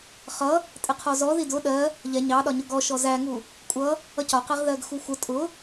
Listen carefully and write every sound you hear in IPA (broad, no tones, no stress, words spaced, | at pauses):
χʌ | tʼɪqʰɔzɔ ðidʊ ɗɜ | ʎɛ ɲɑɗɒɲʊ ɡɔ ʃɔzæŋu | kʷʼʌ | ʌcɒqɛʁðɜɡ xuxʷə tʼʊ